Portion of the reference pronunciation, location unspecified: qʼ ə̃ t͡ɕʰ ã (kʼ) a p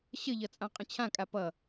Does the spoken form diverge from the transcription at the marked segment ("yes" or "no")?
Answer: no